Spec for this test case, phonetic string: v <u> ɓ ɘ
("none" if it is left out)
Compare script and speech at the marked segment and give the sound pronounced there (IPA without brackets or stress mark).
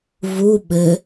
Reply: u